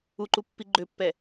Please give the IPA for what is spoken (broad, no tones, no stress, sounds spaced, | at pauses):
u ǃ u pː i ɡ͡ǃ ø pː ɛ